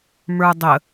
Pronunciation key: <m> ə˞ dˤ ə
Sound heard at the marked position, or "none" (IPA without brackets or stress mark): m